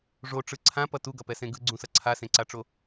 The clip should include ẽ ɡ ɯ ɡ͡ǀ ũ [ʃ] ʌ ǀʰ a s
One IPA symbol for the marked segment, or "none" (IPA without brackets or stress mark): s